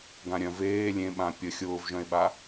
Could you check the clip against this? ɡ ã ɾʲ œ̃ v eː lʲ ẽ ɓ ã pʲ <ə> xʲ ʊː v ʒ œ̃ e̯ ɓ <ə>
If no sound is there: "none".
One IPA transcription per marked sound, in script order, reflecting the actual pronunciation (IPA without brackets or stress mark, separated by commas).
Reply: ə, a